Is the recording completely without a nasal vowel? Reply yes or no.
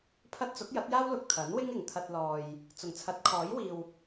yes